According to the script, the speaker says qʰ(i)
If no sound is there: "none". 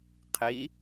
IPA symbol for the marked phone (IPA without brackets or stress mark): i